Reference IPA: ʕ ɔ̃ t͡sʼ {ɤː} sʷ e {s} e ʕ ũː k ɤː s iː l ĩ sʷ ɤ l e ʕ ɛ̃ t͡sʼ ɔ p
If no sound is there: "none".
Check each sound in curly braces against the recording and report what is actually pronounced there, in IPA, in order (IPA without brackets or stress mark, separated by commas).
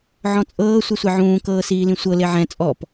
ɤː, sʷ